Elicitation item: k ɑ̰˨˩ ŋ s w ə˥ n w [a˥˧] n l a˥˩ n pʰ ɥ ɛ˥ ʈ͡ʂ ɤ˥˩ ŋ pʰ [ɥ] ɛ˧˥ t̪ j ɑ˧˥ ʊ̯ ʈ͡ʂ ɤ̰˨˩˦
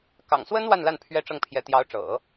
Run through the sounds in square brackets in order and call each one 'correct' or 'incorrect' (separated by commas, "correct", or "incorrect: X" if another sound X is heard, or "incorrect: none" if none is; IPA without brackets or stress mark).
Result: correct, incorrect: j